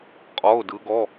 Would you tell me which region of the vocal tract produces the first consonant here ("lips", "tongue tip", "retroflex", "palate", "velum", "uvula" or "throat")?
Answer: uvula